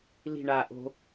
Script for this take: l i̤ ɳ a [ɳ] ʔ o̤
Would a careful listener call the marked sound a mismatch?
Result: yes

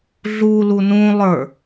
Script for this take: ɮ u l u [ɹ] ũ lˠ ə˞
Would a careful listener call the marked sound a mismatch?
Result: yes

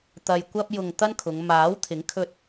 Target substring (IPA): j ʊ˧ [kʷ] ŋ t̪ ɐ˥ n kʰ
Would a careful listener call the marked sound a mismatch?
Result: yes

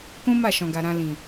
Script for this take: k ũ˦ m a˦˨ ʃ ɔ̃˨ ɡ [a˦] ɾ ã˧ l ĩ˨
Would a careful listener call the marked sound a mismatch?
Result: yes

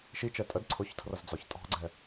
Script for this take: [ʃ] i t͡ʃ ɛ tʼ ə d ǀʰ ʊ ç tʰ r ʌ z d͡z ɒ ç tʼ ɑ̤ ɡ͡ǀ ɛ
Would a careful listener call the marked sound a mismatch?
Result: no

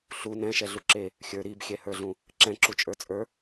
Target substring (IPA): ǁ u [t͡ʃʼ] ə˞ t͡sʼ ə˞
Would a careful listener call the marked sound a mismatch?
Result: no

